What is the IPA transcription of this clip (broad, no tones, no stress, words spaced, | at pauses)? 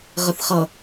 ʁəθχʌ